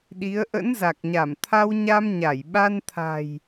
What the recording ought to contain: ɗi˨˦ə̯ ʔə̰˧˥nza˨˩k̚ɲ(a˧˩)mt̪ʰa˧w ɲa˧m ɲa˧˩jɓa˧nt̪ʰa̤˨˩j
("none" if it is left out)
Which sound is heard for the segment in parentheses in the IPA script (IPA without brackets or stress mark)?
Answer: a˧˩